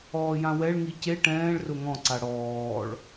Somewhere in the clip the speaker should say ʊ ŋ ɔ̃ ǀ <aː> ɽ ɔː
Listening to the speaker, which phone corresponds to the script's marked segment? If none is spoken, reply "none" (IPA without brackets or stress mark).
a